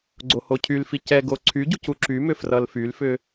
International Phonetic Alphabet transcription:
ɡ͡ǀ o h o cʰ y l f i c ɛ ɡ o ǀʰ y ɟ u c u ǁ y m ʏ f r ʌ l f y l f ʏ

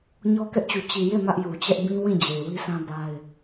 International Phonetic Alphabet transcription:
ɲ ɔ˦ k ɛ˦ ʔ t͡ɕ u˨ t͡ɕ i˨ j e˦˨ m ä˦ ʔ j u˨ t͡ɕ ɛ˦ ʔ b ĩ˦ w ĩ˦˨ d͡ʑ e˨ ɪ̯ w i˦ sʰ ã˦ b a˦ ɪ̯

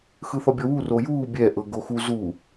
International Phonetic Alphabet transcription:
x ɯ θ ɔ bʲ ɔ w u r o j uː bʲ ɛ ʔ ɤ ɡ o x u z u

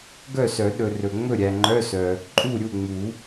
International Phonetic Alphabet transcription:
ɡ œ˥˨ s œ˨˩˦ ɗ ɵ˨ r ɵ˨ ŋ͡m ɵ˥˨ ɾʲ æ˨ ŋ͡ǃ œ˧˥˧ s œ˨ | ǃʼ u˥˨ ɾʲ u˥˨ ŋ͡m u˨˩˦

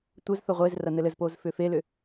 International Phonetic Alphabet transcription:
tʷ ɘ z θ o ʁʷ e z r ɐ n ɘ l ɘ z p o z f ʏ f e l ʏ

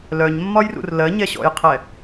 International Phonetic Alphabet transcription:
l œ ɲ mː ɒ j r ṵ r l ɜ ɲ ɛ ɕ ɔ̰ j qʰ ɛ

